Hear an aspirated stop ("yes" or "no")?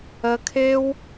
yes